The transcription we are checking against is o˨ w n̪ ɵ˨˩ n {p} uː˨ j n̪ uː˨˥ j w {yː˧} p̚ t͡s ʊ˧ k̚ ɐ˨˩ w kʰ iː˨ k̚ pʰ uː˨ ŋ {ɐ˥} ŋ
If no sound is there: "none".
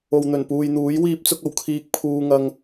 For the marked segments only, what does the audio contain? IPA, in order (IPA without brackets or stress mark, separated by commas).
p, iː˧, ɐ˨